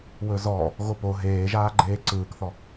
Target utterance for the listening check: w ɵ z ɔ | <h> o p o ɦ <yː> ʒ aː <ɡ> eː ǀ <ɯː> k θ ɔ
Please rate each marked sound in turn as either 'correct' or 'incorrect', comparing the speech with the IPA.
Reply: incorrect: ɣ, incorrect: eː, incorrect: ɡ͡ǃ, correct

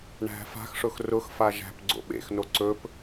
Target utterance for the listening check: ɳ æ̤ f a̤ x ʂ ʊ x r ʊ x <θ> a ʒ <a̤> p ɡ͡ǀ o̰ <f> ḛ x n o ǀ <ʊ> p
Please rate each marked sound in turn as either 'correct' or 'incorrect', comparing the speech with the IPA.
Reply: incorrect: f, incorrect: æ̤, incorrect: ɓ, incorrect: ɵ

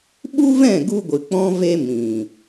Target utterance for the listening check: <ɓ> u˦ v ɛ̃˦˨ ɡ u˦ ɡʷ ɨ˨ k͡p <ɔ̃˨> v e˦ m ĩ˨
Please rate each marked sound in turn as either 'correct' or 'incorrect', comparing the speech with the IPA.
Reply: correct, incorrect: ɔ̃˦

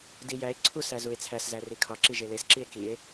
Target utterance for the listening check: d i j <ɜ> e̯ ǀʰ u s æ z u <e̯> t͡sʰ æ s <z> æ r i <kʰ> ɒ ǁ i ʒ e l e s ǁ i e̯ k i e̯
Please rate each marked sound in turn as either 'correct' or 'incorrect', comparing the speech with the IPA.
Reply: incorrect: æ, correct, correct, correct

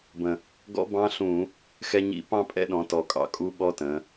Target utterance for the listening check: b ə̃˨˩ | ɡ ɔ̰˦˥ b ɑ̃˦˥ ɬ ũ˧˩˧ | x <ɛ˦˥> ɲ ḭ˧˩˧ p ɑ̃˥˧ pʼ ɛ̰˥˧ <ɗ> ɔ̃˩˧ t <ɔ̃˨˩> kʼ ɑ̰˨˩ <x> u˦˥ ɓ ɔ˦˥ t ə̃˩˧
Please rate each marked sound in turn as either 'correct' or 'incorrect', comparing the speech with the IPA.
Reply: correct, correct, incorrect: ɔ˨˩, incorrect: kʼ

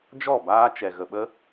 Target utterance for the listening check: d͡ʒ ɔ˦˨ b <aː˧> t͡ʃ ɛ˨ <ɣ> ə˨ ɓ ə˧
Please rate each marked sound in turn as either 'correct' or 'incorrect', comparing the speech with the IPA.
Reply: correct, correct

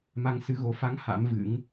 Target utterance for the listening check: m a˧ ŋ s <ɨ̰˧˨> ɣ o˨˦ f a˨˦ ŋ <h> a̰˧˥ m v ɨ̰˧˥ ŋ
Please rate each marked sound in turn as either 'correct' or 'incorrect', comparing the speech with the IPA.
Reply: incorrect: ɨ˨˦, correct

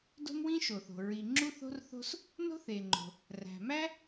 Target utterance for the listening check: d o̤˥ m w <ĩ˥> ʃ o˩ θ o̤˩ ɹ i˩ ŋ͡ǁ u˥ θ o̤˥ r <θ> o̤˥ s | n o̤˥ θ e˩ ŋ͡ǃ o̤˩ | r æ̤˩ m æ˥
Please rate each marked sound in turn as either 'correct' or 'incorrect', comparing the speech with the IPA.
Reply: correct, correct

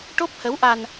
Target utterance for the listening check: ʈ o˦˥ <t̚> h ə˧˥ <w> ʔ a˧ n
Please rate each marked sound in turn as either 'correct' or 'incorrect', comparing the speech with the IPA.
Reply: incorrect: p̚, correct

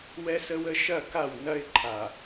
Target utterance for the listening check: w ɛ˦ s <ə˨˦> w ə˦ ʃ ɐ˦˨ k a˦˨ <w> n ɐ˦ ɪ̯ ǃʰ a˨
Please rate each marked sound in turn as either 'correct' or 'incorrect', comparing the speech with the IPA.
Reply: incorrect: ə˦, correct

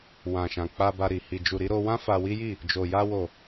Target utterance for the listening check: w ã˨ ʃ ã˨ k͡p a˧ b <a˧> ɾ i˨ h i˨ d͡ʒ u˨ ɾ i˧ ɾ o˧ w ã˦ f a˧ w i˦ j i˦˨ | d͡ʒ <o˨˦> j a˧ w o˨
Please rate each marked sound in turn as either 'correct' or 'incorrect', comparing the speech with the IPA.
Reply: correct, incorrect: o˨

